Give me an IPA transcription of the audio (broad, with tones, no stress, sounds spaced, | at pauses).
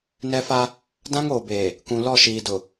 n ɛ˦ f a˦ | d ã˦ ŋ oː˨ b eː˨ | k ũ˨ l ɔ˦˨ ʃ iː˨ d ʊ˨